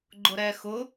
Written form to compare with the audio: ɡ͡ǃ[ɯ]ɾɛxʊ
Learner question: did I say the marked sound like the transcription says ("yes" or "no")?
no